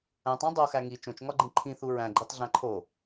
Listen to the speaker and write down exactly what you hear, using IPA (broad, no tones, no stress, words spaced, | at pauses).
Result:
æ̃tˤæ̃ dˤoxæ ŋi t͡ʃõt͡ʃŋɒɡ͡ǃĩ ǃʰĩθu ɹæ̃ɡ͡ǃitˤɮæ̃ ǃʰo